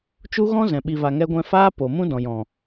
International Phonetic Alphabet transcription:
t͡ʃ u˦ ɣ ɔ̃˦ z ɛ̃˨ ɓ i˧ v a˧ ŋ ɛ˦ ɡʷ ɛ̃˦ f aː˦ p o˨ m ũ˦ d ɔ̃˨ j ɔ̃˨

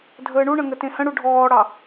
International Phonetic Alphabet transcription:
dʱ əː ɳ u ɳ ə̃ ŋ ə t ẽ h ə̃ ɽ u ɖʱ ɔː ɽ ɑ

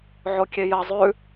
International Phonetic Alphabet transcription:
ʕ o kʲ e j ɐ zˤ ʉ

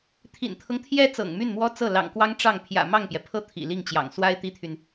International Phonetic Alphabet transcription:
t̪ʰ ḭ˨˩ n t̪ʰ ɤ˦ ŋ t̪ʰ j ɛ˧˥ t͡s ɤ̰˨˩ ŋ m y˥˩ n m w ɔ˥ t͡s ɤ˥˩ l ɑ̰˨˩ ŋ k w ɑ˥ ŋ ʈ͡ʂ ɑ˥˩ ŋ pʰ j ä̰˨˩ m ɑ˥˩ ŋ p j ɛ˩ pʰ ɤ˥˩ t̪ʰ ḭ˨˩ l i˥˩ ŋ t͡ɕ j ɑ̰˨˩ ŋ s w a˥ ɪ̯ t̪ i˥ t̪ʰ y˨ n

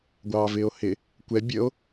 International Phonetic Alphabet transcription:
ɡʷ ɑː v ɪː o̯ h ɪ | kʷ ɛ bʲ ə o̯

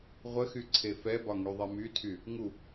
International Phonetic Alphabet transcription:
ʁʷ ə x y ǀʰ e f ɛ b ɒ ŋ y ðˤ ɛ m y tʰ y | ŋ u

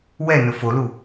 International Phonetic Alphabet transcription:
w ɛ n ʊ f o l u

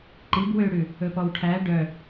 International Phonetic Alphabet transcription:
ǃ i b w ø ɽ ʉ | ɵ p ɔ w ʈʰ æ ɖ œ

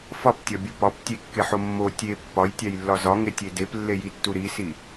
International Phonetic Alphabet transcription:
f ɒ p tʲ ɒ bʲ u p ɒ p tʲ e kː e ħ o mː o tʲ e pː ɒ j tʲ æ j lː ɒ z ɒ ŋ e tʲ e d e p lː e j i tː u ɾ i s i

